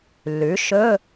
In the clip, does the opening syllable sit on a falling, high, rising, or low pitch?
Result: rising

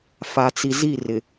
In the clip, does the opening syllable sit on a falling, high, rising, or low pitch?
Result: low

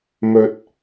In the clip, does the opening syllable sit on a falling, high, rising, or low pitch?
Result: low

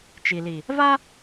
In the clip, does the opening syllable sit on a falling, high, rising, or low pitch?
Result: low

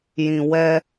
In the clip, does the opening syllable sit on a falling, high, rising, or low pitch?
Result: low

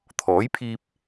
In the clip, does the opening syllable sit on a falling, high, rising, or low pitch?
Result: rising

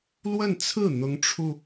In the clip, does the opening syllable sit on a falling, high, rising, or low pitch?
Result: falling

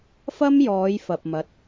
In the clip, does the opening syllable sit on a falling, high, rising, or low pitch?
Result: high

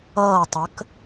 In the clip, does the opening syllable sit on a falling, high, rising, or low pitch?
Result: falling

